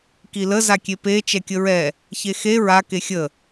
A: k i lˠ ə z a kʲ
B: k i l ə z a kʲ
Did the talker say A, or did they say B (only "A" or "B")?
B